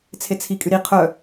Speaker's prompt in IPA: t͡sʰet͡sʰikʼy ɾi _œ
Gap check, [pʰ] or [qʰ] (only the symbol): qʰ